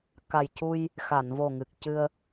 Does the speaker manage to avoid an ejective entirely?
yes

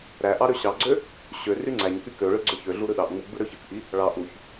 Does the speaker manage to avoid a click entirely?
no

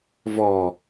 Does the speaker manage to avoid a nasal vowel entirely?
yes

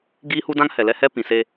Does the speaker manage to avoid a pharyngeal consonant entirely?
yes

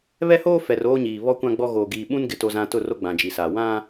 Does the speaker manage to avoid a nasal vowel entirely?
no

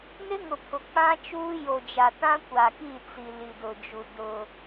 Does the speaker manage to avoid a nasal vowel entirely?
no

